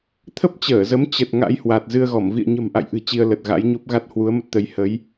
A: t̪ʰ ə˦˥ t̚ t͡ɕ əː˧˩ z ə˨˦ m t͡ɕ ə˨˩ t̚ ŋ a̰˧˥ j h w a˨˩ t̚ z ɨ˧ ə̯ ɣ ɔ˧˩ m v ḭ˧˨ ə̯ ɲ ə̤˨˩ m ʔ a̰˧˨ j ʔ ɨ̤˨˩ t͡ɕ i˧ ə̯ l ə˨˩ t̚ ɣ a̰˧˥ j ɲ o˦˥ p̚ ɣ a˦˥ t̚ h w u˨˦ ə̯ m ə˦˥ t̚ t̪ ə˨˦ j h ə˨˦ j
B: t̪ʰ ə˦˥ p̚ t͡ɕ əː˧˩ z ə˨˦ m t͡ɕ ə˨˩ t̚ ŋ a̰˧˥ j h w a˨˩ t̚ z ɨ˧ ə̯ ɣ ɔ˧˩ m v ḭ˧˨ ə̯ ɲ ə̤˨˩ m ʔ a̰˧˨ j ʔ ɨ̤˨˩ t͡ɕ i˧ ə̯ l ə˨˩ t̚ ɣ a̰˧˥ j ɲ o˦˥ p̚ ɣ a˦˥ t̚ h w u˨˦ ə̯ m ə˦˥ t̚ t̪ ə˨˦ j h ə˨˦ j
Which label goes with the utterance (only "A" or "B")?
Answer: B